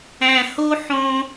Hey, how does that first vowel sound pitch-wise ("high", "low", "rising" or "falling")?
low